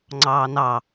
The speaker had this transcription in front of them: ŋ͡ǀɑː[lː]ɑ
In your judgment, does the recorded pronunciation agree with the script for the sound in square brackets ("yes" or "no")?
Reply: no